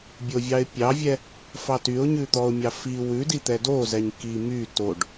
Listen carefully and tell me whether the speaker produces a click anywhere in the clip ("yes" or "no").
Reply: no